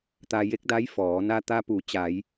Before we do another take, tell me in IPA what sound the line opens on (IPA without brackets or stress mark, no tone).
t̪